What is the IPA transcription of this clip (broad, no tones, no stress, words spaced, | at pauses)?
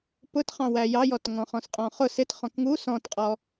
pʊtχɑ̃ wæjɑjɔtŋɔ̃ χɔ̃sqʼɔ̃χʊ sɪt χɔ̃kŋu sɔ̃tqʼɔ